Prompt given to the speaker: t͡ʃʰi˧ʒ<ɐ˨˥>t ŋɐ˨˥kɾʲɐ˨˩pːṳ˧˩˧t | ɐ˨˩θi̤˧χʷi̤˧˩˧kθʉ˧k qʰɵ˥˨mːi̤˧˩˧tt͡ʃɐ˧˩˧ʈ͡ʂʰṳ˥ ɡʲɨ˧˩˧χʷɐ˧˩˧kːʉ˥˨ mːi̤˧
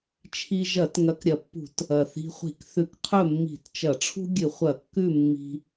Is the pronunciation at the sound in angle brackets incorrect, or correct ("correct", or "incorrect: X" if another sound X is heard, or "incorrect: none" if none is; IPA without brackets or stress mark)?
incorrect: ɐ˧˩˧